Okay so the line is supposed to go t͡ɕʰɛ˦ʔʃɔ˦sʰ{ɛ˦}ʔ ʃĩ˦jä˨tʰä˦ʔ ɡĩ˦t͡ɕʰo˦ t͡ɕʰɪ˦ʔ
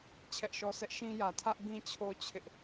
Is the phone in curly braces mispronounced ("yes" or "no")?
no